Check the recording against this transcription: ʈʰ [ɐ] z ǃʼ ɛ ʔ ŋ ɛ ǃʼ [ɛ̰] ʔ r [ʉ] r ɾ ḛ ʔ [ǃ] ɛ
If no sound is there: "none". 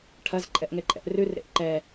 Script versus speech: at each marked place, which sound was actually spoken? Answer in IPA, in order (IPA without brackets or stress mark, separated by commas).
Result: ɐ, ɛ̰, ʉ, ǃ